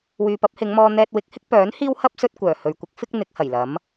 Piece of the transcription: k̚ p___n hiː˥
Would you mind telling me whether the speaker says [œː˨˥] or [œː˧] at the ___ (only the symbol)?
œː˨˥